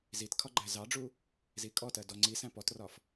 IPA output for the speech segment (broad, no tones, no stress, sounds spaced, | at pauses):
z i t kʰ ɒ ɡ͡ǃ æ z ɑ ɖ͡ʐ u | z i kʼ ɔ t ɜ d ɔ ŋ͡ǀ i s æ̃ p ɔ t r ɒ f